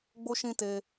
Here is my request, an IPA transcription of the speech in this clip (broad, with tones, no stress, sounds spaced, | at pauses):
ɡ͡b o˧ ʃ ĩ˧ t e˧